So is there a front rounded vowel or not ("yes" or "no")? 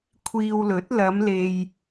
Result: no